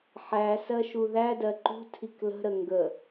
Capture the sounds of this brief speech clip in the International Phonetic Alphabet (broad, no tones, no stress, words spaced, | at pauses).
ħæ sɜʃuðædɜ ǃṳ tʰiklə̤ɾə ŋɡə